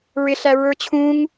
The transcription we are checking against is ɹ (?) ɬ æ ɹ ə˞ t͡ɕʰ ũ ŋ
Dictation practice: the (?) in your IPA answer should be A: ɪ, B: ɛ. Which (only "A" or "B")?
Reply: A